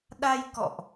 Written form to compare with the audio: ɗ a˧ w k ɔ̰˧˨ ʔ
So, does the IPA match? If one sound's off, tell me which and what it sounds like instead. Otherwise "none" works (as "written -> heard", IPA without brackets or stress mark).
w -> j